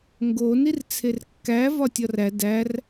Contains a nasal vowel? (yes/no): no